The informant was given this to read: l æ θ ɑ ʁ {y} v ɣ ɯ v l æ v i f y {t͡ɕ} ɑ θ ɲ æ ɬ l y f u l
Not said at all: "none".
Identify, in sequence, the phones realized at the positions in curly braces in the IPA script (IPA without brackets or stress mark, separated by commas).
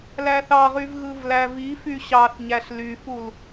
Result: y, ɕ